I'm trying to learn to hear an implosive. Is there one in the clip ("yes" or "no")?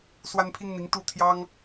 no